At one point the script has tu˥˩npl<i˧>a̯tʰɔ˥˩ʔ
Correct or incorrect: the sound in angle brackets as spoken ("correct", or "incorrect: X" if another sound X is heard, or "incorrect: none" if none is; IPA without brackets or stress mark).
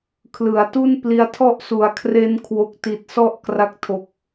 correct